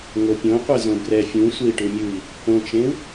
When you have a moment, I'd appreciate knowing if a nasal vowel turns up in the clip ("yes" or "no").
yes